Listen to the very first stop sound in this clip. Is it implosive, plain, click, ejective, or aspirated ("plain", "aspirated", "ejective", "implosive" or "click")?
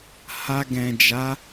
plain